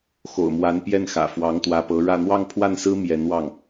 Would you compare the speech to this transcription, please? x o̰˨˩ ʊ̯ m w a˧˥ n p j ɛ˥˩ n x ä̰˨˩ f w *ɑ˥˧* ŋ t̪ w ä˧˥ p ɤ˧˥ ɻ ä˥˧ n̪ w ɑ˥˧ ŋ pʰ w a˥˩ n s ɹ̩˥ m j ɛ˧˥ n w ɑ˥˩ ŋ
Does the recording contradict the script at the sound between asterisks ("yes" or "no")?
yes